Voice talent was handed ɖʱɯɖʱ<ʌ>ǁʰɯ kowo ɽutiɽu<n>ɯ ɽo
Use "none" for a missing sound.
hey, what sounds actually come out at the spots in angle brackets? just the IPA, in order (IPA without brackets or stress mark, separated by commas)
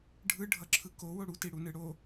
ʌ, n